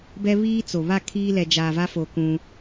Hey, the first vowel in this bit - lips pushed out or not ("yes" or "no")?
no